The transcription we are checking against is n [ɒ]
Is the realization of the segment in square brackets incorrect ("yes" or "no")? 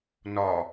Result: no